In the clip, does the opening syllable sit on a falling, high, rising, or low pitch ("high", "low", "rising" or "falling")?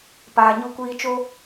low